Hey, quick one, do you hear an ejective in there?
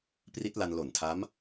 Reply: no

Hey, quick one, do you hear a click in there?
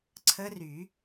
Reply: yes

